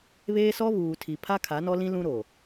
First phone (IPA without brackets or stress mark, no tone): β